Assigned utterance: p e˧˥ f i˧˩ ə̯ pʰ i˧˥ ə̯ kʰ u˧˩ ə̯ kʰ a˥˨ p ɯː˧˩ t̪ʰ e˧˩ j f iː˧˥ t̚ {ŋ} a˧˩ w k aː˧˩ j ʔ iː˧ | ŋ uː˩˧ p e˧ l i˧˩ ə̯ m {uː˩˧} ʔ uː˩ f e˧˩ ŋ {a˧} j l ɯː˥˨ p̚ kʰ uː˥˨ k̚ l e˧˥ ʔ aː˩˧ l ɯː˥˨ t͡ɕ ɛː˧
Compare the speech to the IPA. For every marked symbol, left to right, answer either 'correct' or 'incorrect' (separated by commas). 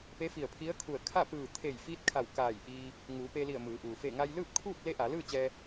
incorrect, incorrect, correct